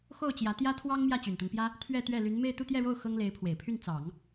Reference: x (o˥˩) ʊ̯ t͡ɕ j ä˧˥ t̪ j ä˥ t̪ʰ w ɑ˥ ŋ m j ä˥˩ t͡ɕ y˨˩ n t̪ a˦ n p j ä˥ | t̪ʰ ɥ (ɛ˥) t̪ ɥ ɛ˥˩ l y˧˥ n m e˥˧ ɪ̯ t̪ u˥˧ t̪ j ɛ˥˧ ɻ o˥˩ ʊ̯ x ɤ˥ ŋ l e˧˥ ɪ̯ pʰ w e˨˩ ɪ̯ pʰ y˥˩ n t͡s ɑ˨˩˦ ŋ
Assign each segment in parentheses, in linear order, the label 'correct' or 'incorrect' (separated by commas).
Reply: correct, incorrect